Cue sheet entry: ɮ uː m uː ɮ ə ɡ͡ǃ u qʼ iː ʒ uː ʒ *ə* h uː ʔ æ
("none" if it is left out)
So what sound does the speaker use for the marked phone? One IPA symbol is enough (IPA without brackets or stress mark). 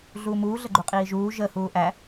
ə